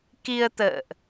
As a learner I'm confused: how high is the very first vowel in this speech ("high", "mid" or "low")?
high